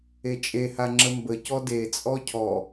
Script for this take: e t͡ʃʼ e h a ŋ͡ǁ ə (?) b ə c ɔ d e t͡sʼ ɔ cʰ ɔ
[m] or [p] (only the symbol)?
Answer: m